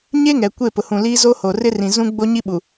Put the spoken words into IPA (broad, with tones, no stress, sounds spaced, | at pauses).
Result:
ɲ e˦ ŋ ɛ˨ kʷ e˦˨ p ʊ˨ h ũ˨ l iː˦ z o˦ h o˨ r ɪ˦ r ĩ˨ z ũ˦ ɡ͡b o˦ ɲ i˦ ɓ u˨